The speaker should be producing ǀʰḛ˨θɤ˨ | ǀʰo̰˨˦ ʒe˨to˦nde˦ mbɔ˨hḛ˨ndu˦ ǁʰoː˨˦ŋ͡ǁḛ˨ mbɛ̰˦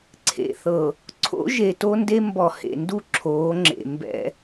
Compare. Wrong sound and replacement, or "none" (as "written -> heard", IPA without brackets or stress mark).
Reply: none